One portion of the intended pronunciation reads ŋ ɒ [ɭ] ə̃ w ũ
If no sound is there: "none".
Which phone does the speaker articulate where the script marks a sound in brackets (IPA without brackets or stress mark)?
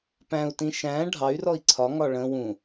ɭ